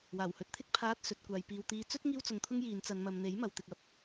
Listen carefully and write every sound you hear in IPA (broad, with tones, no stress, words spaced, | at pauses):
waː˨˩whɵ˨˥t̚t̪ʰɪ˥k̚ pʰaː˧t̚sɵ˨t̚ kʷaː˨jpiː˨w t̪iː˨˧t͡sɵ˥t̚ ŋiː˧wt͡sʊ˨ŋt̪ʰʊ˧ŋ jiː˨˧n t͡sɐ˨nmɐ˨m n̪e˨˥jmɐ˨w t̪ɪ˨k̚ɐ˧p̚